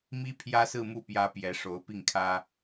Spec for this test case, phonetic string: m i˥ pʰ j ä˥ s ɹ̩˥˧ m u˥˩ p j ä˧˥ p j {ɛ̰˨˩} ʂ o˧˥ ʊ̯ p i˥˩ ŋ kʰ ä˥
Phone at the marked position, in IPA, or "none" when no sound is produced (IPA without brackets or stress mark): ɛ˧˥